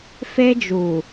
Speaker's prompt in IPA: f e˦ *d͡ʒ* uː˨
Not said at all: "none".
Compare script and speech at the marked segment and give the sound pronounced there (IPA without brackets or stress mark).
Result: d͡ʒ